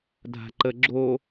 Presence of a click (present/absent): present